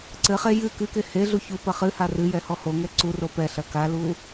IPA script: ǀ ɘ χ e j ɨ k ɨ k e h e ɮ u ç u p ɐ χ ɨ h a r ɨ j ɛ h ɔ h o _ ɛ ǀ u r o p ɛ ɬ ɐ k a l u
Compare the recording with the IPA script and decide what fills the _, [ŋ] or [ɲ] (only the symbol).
ŋ